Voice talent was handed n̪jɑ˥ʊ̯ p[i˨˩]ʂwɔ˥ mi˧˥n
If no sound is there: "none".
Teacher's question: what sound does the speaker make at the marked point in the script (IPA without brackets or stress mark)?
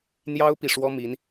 i˨˩